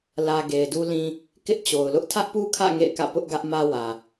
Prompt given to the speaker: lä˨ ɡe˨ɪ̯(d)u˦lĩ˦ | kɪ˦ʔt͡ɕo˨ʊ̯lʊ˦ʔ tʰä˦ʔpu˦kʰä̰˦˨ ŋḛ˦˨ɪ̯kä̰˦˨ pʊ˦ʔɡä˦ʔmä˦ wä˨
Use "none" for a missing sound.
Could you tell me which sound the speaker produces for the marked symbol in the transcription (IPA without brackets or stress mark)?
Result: d